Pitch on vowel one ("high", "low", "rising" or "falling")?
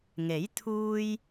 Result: rising